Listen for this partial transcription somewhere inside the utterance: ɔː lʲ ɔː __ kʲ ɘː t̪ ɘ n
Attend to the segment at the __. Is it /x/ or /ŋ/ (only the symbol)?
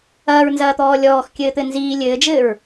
x